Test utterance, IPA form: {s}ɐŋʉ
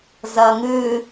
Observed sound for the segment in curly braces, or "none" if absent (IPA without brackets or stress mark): z